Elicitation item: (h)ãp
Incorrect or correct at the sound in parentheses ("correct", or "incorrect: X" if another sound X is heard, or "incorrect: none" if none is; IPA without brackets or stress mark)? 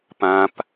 incorrect: p